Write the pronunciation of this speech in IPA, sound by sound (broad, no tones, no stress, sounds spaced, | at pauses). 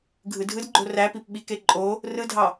ɡʱ ɯ dʱ ɯ d ɡ͡ǃ o r æ p i p ɓ i k e ǃʼ o | r ɯ dʱ ɑ